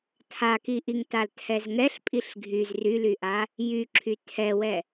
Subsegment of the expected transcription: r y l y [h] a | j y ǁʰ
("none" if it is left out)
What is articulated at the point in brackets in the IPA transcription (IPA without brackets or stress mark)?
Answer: ʔ